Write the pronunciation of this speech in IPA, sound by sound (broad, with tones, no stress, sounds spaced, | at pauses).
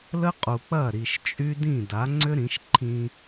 l ə˦ qʼ u˨ k͡p ɐ˦˨ ɾ i˨ ʃ t͡ʃʼ y˦ d ĩ˦˨ d a˨˦ ŋ͡ǀ ʏ˦ ɾ ĩ˨˦ ʃ ǃʰ ĩ˦